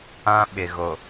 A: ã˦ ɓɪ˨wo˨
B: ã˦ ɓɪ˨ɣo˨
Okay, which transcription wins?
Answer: B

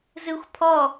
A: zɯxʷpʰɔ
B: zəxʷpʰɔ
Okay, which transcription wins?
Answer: A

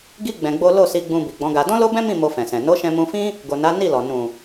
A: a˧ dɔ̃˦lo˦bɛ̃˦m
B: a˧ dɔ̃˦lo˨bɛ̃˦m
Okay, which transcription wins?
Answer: A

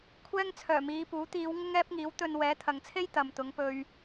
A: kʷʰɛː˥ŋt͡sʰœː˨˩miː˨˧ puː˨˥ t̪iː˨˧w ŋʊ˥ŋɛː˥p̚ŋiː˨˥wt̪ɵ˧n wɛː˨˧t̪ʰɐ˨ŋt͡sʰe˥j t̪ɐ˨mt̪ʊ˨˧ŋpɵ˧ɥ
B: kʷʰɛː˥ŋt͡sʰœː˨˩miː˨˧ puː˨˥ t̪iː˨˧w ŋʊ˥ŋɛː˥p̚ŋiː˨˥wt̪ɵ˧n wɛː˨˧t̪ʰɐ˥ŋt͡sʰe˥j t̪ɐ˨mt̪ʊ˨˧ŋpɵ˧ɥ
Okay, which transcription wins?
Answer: A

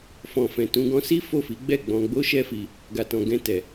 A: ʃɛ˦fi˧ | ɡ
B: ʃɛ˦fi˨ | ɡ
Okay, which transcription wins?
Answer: A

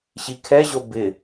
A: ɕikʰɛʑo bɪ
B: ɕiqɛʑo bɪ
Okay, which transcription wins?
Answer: A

